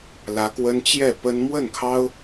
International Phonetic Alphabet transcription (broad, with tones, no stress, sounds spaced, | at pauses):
l ä˧˥ k w ə˥ n t͡ɕ j ɛ˥˩ p ə˥ n m w ə˥˩ n kʰ ɑ˥ ʊ̯